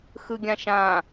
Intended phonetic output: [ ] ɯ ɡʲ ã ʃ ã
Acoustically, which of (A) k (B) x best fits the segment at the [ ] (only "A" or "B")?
B